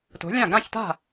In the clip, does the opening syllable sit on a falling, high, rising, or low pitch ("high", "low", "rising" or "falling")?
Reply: rising